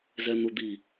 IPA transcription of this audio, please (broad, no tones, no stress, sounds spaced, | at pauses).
z ɛ n̪ u d̪ i